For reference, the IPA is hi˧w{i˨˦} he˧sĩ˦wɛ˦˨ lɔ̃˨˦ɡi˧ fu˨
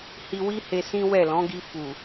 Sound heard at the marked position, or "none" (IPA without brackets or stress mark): i˦